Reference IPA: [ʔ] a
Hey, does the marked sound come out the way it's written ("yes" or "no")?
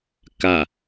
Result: no